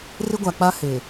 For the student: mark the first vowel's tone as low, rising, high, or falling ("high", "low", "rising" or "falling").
high